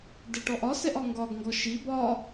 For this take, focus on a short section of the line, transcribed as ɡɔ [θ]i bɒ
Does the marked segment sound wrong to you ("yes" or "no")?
yes